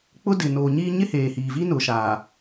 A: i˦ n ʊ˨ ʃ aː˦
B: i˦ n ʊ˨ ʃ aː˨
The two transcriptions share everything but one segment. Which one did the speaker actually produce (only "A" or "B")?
B